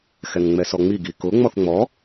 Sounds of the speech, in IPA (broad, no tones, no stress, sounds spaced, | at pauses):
x ɛ ŋ ŋ͡m ɛ s ɔ ŋ͡m i ɡ i k ʊ ŋ͡m ɔ θ ŋ͡m ɔ